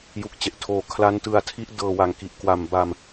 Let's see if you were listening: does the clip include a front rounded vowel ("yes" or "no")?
no